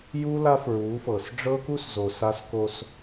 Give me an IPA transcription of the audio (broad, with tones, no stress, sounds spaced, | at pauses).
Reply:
j u˦ l a˦ f ɹ u˨˦ f ɤ˨ s ɖ͡ʐ ɤ˦ k u˦ s z o˨ s a˦ s k o˦ s